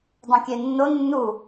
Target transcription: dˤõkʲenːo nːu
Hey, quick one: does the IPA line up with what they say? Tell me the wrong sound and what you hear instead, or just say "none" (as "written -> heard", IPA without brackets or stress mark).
none